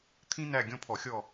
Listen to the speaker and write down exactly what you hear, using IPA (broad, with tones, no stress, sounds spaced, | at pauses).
t̪ʰ ĩ˥ n æ˦˨ ɡʲ ɔ̃˦˨ pʰ ɔ˧˩˧ xʲ ɔ˦˨